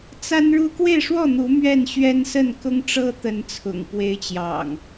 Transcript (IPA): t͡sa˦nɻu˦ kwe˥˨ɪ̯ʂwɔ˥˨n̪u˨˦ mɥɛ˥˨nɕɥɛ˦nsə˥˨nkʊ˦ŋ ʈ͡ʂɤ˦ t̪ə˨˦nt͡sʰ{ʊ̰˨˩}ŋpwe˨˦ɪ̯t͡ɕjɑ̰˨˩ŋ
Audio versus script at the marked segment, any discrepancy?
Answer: no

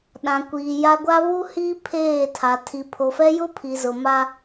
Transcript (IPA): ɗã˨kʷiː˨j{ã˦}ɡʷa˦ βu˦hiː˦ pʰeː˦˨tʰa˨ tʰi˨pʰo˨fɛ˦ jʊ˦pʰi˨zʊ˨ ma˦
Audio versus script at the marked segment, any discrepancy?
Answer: yes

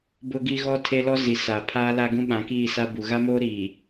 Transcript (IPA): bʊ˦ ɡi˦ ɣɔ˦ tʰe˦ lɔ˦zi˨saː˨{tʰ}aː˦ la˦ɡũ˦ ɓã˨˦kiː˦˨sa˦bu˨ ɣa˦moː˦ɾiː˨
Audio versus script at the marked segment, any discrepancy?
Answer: yes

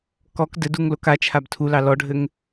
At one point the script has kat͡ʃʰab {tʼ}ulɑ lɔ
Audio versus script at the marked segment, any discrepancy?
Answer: yes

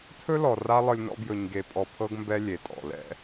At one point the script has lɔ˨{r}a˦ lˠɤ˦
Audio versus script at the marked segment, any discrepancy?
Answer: no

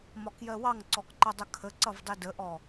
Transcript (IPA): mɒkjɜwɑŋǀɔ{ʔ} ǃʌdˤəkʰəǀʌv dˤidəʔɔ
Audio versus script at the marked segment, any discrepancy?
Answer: yes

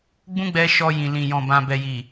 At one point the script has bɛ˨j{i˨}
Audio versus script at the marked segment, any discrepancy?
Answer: no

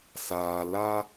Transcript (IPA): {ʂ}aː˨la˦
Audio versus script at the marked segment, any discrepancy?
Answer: yes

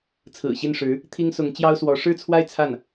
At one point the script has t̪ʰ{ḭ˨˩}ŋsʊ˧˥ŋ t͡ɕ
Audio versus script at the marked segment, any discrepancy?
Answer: yes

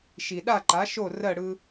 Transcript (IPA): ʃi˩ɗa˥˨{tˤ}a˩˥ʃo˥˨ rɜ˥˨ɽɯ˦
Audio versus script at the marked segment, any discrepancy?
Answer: yes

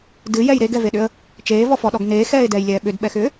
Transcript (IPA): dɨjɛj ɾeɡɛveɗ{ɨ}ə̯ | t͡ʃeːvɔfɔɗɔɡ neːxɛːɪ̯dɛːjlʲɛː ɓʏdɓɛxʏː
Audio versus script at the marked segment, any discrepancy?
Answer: yes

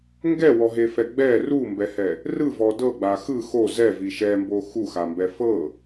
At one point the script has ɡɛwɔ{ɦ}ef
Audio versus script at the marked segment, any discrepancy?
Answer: no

